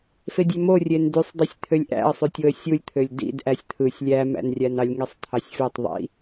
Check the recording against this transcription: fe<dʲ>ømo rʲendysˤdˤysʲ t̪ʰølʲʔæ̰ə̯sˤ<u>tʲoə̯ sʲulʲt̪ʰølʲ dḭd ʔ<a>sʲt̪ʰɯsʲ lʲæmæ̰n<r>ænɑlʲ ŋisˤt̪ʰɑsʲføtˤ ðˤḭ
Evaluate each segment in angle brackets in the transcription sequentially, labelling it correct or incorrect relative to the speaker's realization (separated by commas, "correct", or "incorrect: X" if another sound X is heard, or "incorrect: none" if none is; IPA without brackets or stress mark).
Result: correct, incorrect: y, incorrect: æ, incorrect: rʲ